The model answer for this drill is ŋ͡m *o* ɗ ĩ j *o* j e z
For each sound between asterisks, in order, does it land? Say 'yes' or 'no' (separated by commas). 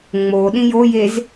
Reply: yes, yes